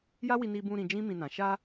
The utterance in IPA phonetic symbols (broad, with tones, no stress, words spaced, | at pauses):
ja˦wi˧ni˧bũ˧ ɾĩ˧d͡ʒĩ˦ mĩ˧nã˨ ʃa˧